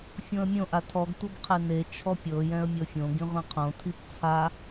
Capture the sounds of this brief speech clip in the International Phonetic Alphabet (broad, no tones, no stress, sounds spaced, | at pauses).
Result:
fʲ õ ə̯ mʲ õ ʔ a tʰ ɔ ɡ tʷ ɤ b qʰ e n e t͡ʃʰ ɔ pʲ ɤ j ɛ̃ ə̯ mʲ ɤ fʲ õ ɡ ĩ ʁʷ ĩ qʰ õ tʰ i p t͡sʰ a